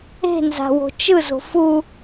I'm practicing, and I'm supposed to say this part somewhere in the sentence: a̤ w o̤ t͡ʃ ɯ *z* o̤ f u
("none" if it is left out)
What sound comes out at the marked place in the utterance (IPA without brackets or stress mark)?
z